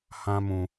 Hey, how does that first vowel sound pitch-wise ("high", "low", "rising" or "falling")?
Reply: high